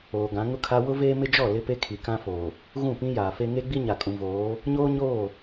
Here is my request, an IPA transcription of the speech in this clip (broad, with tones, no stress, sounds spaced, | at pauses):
oː˨ ɡ ã˨˦ ŋ ʊ˦ kʰ a˦ w ʊ˦ v eː˦ m ɪ˦ d͡ʒ ɔ˦˨ l ɪ˦ p e˦ kʰ i˨ k ã˦ f oː˨ | ɣ ũ˦˨ p ĩ˦ j aː˨ f e˦ ŋ e˦ ɡ͡b i˦ ɲ a˨ kʼ ũ˨ v oː˨˦ | ɲ oː˦ ɲ oː˦˨